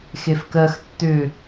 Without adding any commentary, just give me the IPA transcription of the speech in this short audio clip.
x e f k ɜ x tː ʏ

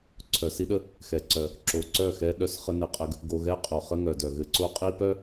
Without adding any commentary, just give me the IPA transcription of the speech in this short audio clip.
ǀʰ œ˨ s i˦ ɗ ə˦ | x ɛ˨ ǀ œ˨ | ǁ o˨ ǀ œ˦˨ x ɛ˦ ɗ œ˦ s χ ə˦ n ɘ˨ qʼ ɘ˦ ɡ | ɡ o˨ ɣ ɛ˦ qʼ o˨ χ ə˦ ŋ œ˨ d œ˨ ɣ ɘ˨ ǀ o˦ qʼ i˦ p œ˦

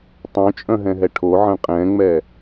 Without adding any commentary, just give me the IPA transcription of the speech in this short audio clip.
tˤ œ̃ t͡ʃʼ œ̃ ɦ ɛ̃ ɦ ɛ ʈʰ o ʕ ə̃ qʼ ɛ̃ ŋ͡m ɛ

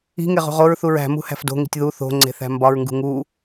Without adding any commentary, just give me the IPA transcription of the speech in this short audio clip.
i̤ ŋ e ʁ ṳ ʁ o ɹ θ u ɹ æ̤ m ṳ h æ̤ f d o̤ ŋ i̤ tʲ ð u θ o̤ ŋ͡ǀ e̤ θ æ̤ m b ɒ ɹ ŋ ɡ ṳ ŋ u

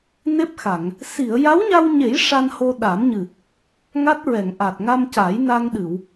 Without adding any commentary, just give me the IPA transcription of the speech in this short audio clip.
n e˦˥ p̚ x a˨˩˨ ŋ | s i˨˩˨ ə̯ j a˧˥ w ɲ a˧ w ɲ e˨˩˦ j ʂ a˧ n h o˧ ɗ a˨˩˦ m ɲ ɨ˨˩ | ŋ a˦˥ t̚ ɹ ɛ˨˩˨ ŋ ʔ a˨˩ t̚ ŋ a˧ m c a˨˩˦ j n a˧ ŋ ɗ ɨ˨˩˨ w

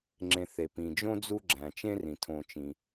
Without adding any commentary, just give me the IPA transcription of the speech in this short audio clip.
ŋ͡ǁ ẽ˨ θ e˩ p ĩ˩ d͡ʒ õ˥ d͡z u˦ ɡ͡ǁ æ̃˩ t͡ʃ ẽ˥ r ĩ˩ tʰ õ˨ t͡ʃ ĩ˩

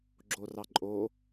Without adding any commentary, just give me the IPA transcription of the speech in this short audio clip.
ɡ͡ǁ o r ɑ ǃʼ o

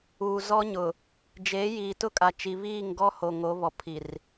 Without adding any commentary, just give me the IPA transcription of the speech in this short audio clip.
uː˨ z ɔ˦ ɲ ʊ˨ | d͡ʒ e˨˦ j iː˨ t ʊ˦ kʼ a˨ t͡ʃ i˨ β iː˦˨ ŋ ɡ ɔ˦ h o˨ ŋ o˨˦ β ɔ˨ pʰ i˨ r

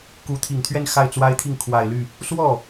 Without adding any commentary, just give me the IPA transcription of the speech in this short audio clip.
k u˧˥ t̪ʰ i˨˩ ŋ t̪ʰ ɥ ɛ˥˧ n x a˥˩ ɪ̯ t͡s w a˥ ɪ̯ t̪ʰ i˥˩ ŋ kʰ w a˨˩ ɪ̯ l y˥˩ | s w ɔ˥˩

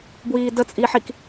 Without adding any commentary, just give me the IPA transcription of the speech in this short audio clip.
b w iː d ə t͡sʼ i ħ i k

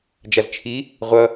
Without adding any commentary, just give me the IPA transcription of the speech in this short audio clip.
d͡ʒ a z t͡ʃʰ i | ʁʷ ʌ

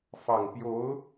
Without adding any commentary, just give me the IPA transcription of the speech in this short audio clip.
f ɑ˨˩ ŋ p j o˧˥ ʊ̯

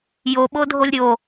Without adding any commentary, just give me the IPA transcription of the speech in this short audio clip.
j o ɓ o dʱ o lʲ ɾʲ o

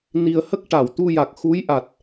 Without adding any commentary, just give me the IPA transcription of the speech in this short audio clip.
n i˨˩ ə̯ h ə˦˥ k̚ ʈ a˨˩˨ w t̪ u˧ j a˨˩ k̚ x u˧˥ j ʔ a˨˩ t̚

